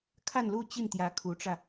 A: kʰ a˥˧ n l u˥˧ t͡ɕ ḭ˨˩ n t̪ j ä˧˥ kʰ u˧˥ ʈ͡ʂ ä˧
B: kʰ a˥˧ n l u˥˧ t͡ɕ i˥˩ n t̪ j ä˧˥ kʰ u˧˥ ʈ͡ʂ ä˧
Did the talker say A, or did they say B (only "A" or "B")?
B